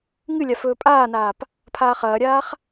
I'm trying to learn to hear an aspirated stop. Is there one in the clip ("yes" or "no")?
yes